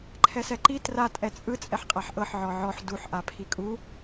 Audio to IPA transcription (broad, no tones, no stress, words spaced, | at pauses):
ǃʰɛsɛǃi tra tʼɛt͡sʼɯ t͡sʼɛħqʼaħʔɤħ ʕɔʕɔħ duħ ʔapʰikʼu